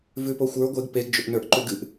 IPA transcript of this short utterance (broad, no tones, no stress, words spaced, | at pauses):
vʉpoxʷə˞ ɡʷeɡ peɡd͡ʒʏʔnə˞ʔ ǃʉɡɨʔ